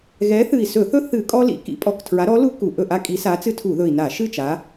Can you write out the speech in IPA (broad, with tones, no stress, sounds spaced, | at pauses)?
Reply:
ɣ ɛ˨˦ θ ɨ˨˩ i̯ s ɵ˧˩˧ θ ɵ˦ θ ɨ˧˩˧ kʼ ɔ˦ l ḭ˨˦ k ḭ˨˦ pʼ ɔ˨˩ k tʰ ɹ a˨˦ ɾ ɔ˨˦ l u˦ k u˨˩ ʔ ɵ˥˨ ʔ a˦ kʼ i˨˦ s a˨˦ t͡s ɨ˦ tʰ u˧˩˧ ð ɵ˨˩ i̯ n a˧˩˧ ʃ ɨ˥˨ t͡ʃ a˨˦